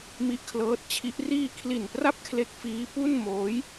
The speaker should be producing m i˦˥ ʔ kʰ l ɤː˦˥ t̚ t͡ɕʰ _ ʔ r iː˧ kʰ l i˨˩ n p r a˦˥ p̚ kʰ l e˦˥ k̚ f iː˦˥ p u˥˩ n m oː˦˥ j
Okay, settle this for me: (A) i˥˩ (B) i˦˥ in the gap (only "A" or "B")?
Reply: B